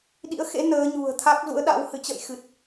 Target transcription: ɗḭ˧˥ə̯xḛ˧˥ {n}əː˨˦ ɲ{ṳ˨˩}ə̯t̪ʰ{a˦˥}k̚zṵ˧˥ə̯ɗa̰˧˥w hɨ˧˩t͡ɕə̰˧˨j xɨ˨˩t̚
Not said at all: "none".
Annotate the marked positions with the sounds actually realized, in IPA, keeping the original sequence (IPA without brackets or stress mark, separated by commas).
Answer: n, ṳ˨˩, a˦˥